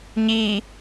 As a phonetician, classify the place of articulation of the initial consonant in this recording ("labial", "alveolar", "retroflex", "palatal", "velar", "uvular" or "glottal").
palatal